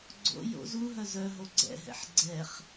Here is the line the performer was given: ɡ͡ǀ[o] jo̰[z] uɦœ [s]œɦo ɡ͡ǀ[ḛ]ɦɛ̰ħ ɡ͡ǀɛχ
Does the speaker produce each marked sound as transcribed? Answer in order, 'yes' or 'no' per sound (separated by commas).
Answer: no, yes, no, no